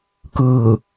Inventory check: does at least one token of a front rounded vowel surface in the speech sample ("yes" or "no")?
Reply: no